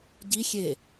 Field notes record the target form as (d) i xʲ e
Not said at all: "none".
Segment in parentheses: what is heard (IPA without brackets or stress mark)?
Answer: ɟ